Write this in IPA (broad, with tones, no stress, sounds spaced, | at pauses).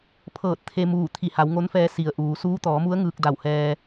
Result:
pʰ ɤː˧˩ t̚ t̪ʰ e˧ m uː˧˩ t̪ʰ i˧˩ h a˩˧ w ŋ o˧˥ n f ɛː˧ s i˩ ə̯ ʔ uː˩˧ s uː˧˥ t̪ ɔː˩˧ m u˧˥ ə̯ ŋ ɯː˧ k̚ d a˧˩ w h ɛː˧